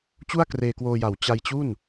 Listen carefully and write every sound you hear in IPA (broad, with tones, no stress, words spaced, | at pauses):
t͡ɕu˥˩a̯kreː˧kwoː˧ja˨˩w t͡ɕa˧jt͡ɕu˥˩n